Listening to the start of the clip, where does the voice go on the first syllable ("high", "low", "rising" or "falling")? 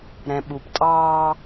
low